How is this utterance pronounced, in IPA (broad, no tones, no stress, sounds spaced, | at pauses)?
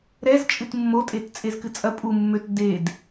ɾ ɛ z t͡ʃʼ ɨ t mː o tʼ e t t͡sʼ e z k ɨ t͡sʼ ɐ pʼ u mː ø t d e d